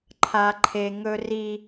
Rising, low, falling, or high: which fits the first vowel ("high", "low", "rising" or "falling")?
low